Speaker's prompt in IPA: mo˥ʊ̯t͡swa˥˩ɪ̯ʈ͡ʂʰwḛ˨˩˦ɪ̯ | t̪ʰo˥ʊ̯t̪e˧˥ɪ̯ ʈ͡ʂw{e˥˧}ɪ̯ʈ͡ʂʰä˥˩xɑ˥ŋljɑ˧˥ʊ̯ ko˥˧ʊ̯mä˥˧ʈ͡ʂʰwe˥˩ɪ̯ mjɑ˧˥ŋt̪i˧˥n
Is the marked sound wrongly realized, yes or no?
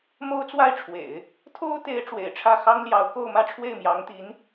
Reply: yes